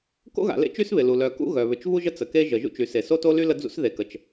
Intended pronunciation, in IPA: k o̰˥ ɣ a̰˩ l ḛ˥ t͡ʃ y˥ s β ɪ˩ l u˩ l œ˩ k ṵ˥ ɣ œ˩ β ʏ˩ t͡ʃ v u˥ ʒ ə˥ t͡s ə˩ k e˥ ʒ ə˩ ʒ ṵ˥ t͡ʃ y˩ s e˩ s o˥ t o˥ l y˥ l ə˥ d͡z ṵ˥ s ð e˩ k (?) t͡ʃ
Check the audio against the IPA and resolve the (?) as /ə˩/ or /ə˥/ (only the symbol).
ə˩